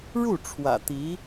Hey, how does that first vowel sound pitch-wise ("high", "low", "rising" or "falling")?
falling